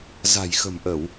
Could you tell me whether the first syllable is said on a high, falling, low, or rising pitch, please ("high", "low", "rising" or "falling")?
low